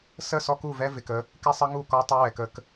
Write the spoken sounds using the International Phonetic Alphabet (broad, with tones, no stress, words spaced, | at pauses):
sə˦˨sɔ˦ku˦˨vɛ˦ vɪ˨kə˦ | kɪ˦sˤə˦ŋu˦˨ kɔ˦tˤɪ˦ wɛ˨kə˦k